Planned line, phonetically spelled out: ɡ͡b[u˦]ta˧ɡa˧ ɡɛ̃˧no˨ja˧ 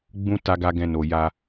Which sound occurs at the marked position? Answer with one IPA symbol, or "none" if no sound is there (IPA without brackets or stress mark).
ũ˦